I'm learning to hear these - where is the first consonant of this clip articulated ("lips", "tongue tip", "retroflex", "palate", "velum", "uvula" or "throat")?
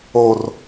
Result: tongue tip